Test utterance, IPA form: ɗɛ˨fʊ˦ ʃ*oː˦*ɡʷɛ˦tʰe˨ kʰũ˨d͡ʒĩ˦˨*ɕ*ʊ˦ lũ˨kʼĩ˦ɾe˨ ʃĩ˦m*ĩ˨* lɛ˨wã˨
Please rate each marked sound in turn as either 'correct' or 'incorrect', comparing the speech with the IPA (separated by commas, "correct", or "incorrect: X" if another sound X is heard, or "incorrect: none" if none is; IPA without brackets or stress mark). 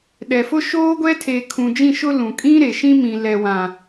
correct, incorrect: ʃ, correct